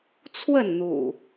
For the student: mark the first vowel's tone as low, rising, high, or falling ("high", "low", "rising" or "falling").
falling